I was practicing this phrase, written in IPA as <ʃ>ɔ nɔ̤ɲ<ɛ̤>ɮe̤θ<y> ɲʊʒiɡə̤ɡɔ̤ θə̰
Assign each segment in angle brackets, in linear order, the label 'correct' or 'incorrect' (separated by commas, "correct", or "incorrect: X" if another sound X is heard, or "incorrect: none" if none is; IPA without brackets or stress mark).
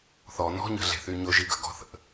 incorrect: θ, incorrect: ə̤, correct